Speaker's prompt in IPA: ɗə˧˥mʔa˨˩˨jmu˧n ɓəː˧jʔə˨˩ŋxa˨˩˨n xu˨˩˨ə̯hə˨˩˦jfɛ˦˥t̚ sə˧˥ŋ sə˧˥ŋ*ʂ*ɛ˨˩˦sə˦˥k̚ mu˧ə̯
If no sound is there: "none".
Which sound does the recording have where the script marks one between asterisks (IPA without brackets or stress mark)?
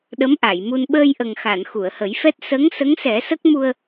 s